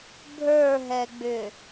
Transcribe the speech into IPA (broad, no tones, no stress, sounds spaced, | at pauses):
bʱ ə˞ ɦ ɛ ɡ͡b ʏ